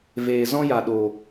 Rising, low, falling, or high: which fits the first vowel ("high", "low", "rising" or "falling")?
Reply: low